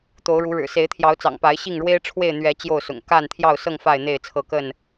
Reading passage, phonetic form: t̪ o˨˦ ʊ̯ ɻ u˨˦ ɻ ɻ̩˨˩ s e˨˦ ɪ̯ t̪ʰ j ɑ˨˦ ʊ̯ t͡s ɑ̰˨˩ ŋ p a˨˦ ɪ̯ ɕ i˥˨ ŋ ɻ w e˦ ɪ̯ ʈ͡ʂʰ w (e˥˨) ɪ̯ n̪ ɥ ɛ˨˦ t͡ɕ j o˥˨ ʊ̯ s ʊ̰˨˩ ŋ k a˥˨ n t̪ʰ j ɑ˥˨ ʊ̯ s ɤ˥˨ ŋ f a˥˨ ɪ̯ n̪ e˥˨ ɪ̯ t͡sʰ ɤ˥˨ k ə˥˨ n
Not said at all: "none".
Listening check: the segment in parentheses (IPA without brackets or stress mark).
e˥˨